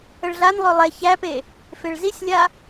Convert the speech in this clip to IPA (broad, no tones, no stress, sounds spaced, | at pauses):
ə ɭ ɮ a n lˠ ø lˠ ɛ ç æ p e | f e ɭ z i sʲ lʲ a